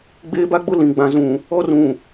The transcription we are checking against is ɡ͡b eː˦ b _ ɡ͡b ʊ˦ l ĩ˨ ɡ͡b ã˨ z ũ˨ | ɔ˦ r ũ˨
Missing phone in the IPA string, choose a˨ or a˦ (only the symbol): a˦